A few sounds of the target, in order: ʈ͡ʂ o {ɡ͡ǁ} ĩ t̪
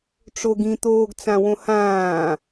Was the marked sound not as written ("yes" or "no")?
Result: yes